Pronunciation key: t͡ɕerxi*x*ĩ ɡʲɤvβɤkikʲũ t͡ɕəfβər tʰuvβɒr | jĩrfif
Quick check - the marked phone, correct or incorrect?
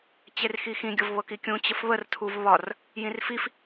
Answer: correct